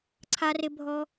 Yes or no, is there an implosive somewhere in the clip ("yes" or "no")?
no